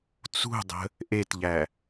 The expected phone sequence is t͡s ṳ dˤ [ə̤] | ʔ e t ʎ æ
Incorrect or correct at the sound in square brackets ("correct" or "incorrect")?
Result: correct